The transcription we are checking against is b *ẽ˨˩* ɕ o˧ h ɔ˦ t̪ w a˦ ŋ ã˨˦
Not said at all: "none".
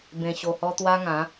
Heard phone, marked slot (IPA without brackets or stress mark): ẽ˧